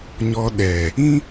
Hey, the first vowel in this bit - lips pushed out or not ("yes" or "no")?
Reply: yes